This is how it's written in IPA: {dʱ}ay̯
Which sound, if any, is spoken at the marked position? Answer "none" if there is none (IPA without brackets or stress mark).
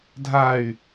dʱ